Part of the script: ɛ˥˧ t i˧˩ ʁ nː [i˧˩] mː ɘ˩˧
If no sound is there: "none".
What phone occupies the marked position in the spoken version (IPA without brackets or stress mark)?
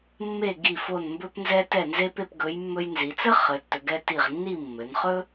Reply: i˥˧